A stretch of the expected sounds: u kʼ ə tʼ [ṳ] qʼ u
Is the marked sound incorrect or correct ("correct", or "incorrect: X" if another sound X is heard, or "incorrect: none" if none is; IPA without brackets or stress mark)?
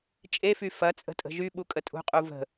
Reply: correct